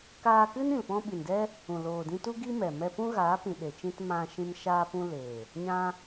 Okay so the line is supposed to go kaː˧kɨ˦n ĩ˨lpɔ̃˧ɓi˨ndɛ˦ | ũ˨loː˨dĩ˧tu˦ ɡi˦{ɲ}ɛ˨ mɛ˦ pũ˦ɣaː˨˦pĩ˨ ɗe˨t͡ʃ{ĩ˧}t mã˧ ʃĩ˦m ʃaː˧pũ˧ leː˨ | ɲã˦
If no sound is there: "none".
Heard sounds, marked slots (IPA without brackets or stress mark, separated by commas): m, ĩ˧